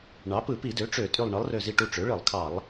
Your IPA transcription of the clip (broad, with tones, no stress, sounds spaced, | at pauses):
ɳ ɑ˩˥ p ɯ˧˩˧ p i˧˩˧ d ø˩˥ ʈ͡ʂ ø˧˩˧ tʼ y˧˩ lˠ ɳ ɯ˩˥ lˠ r ø˧˩ z i˧˩ ʈ u˧˩ ʈ͡ʂ ø˩˥ ɭ ɯ˧˩˧ lˠ kʰ ɑ˧˩˧ lˠ